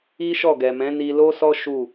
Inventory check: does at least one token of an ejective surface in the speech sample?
no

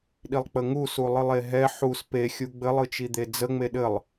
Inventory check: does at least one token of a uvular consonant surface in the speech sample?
no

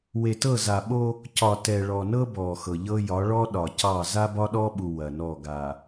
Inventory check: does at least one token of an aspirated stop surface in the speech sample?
no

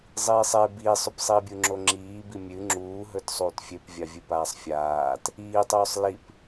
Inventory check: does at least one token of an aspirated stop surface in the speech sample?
no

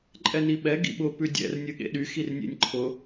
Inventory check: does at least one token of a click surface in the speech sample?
yes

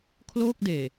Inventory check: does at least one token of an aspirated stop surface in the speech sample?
yes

